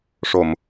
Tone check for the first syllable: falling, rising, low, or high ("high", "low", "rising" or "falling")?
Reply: low